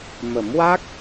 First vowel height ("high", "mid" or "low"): mid